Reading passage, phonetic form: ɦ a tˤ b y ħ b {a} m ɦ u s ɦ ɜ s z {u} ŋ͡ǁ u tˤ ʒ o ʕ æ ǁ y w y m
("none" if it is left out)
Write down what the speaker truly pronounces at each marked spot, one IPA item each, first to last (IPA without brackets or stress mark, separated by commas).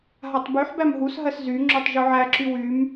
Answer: æ, y